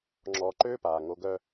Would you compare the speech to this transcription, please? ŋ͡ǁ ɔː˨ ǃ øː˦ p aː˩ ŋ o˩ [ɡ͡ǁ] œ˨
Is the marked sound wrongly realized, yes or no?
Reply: yes